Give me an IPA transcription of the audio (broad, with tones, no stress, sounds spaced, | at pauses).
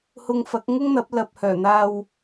h ʊ˧ ŋ f ɐ˨˥ k̚ ŋ ʊ˥ ŋ n̪ ɐ˨˥ p̚ l ɐ˨ p̚ h œː˨˩ n̪ aː˧ w